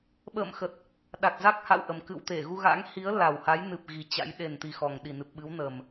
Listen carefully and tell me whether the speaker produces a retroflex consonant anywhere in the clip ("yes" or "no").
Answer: no